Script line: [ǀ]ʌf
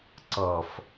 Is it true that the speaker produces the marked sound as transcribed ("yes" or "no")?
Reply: yes